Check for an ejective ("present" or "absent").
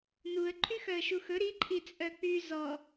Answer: present